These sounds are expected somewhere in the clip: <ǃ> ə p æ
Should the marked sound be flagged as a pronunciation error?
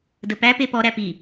yes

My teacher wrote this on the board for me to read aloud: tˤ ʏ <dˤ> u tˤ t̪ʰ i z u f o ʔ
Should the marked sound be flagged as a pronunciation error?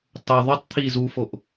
yes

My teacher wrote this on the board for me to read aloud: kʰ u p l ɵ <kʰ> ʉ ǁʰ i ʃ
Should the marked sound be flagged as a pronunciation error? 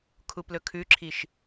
no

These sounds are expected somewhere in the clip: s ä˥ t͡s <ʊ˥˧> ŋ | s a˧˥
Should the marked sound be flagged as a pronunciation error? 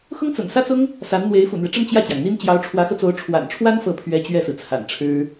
yes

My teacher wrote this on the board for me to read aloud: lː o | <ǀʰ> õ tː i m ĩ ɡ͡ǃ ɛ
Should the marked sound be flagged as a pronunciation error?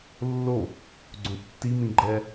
yes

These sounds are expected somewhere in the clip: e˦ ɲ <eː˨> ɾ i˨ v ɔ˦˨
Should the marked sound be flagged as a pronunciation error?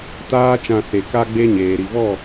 no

